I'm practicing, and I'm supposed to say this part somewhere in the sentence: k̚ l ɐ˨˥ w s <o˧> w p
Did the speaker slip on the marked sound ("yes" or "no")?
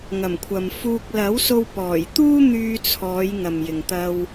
no